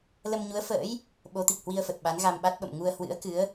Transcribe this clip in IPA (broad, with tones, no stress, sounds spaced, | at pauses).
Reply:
l ə˧ m ɲ u˨˦ ə̯ f ə̰ː˧˥ j | ɓ o˨˦ t̪ i˨˩ k̚ h w i˧ ə̯ f ə˨˩ t̚ ɓ a˨˦ n ɣ a˧ m ɓ a˦˥ t̚ ɓ ə̰˧˨ m ŋ u˧ ə̯ h w ɨ̰˧˥ ə̯ k ɨ˨˦ ə̯